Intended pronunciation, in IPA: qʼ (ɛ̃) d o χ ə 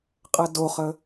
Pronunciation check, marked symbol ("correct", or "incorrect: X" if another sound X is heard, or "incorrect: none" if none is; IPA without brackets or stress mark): incorrect: ɛ